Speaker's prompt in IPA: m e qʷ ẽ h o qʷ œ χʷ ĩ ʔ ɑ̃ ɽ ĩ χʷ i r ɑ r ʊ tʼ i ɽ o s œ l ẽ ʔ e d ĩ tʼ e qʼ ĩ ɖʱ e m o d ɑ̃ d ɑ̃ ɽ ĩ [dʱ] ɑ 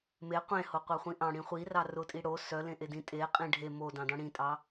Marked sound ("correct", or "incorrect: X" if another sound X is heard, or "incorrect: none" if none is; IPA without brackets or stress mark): incorrect: tʼ